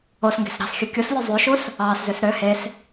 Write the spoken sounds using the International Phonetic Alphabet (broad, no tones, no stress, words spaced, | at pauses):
osŋɡe̤s ɾɑ̤sxʲɯ kʲuslʲu zˤyʃus | ɑːszøs ɾø hes